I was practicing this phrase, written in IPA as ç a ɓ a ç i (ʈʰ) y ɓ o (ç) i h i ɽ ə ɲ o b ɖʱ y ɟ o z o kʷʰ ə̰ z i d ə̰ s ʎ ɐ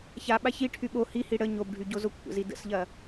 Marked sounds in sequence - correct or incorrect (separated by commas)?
correct, incorrect